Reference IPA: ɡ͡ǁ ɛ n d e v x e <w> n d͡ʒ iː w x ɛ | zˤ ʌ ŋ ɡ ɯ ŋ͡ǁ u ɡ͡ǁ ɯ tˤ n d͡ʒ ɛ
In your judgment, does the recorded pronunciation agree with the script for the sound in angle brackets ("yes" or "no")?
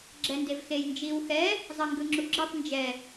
no